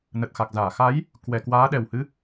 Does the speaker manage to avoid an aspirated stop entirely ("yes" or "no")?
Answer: yes